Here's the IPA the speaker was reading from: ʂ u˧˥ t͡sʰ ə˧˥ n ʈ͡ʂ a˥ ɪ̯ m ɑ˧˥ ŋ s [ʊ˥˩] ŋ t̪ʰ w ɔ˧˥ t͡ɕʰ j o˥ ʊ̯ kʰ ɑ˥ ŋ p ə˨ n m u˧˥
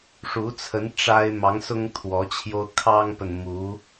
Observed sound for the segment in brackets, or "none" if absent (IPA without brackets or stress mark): ʊ˥